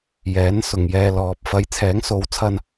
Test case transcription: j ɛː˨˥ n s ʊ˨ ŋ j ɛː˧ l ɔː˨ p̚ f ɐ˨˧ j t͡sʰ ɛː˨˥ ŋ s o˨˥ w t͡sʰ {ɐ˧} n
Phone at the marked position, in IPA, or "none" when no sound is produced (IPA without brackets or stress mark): ɐ˧